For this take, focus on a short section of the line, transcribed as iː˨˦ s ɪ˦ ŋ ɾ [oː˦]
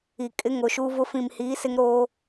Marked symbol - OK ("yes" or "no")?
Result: yes